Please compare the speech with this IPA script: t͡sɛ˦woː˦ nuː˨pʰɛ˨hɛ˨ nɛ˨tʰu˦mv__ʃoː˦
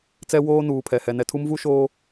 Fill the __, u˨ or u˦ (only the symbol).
u˦